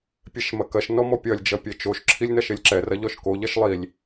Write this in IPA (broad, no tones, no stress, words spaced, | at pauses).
pʲɛʃmɐkɐʃ nɔmɔpʲɐlʲ d͡ʒɐpʲɛt͡ʃoʃ ǁʰilʲnɐʃelʲǁɛ rɐʎɔʃko ʎɐʃlˠilʲ